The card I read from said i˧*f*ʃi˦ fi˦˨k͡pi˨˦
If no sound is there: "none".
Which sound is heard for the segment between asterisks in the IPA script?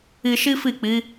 none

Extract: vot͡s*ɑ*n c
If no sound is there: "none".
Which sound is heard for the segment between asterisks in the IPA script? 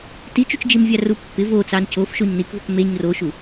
ɑ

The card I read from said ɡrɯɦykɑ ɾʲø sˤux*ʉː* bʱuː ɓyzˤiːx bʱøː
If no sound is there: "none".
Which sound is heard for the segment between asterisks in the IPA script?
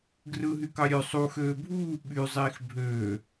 øː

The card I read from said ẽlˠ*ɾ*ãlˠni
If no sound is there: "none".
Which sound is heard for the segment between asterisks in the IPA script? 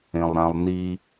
ɾ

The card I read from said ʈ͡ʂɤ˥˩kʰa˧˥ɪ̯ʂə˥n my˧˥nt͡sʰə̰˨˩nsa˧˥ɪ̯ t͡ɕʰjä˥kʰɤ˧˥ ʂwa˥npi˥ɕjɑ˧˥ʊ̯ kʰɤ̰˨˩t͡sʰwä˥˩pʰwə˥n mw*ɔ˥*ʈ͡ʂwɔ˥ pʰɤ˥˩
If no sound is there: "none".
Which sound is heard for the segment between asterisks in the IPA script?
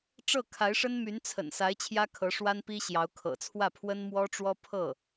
ɔ˥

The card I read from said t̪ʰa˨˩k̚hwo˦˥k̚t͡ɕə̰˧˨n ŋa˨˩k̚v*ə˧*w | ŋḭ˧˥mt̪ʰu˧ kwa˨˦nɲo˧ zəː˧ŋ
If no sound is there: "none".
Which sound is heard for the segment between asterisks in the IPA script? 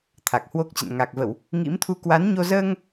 ə˧˩˨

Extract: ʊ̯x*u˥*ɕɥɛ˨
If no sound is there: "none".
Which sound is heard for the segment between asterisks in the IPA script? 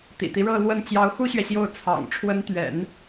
u˥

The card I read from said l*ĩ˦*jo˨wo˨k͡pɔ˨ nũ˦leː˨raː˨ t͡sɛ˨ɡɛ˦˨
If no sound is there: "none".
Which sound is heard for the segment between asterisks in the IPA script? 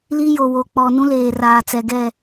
i˦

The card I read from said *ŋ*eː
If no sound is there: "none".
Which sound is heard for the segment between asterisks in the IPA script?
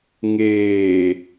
ŋ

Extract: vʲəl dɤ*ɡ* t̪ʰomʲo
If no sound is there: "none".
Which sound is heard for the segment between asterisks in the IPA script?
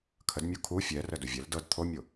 d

